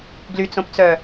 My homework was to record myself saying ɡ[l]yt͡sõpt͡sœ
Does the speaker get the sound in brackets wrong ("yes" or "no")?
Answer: no